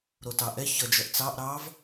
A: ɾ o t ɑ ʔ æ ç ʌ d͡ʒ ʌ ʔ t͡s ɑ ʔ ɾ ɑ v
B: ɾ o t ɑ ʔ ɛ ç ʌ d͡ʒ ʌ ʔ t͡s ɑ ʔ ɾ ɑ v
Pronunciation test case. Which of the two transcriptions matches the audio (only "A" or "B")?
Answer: B